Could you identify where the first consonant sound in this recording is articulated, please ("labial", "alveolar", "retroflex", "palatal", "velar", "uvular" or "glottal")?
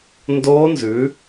alveolar